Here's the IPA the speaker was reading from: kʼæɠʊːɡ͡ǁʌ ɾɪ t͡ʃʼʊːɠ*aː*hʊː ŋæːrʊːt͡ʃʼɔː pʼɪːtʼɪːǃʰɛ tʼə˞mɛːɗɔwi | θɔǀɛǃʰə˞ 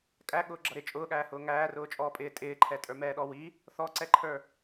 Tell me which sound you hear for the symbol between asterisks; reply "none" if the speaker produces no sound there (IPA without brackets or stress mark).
æː